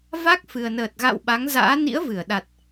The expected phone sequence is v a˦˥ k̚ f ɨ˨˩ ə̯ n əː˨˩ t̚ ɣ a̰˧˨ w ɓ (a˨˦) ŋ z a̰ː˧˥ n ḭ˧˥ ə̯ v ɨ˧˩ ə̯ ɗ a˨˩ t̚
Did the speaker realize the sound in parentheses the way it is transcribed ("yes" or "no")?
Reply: yes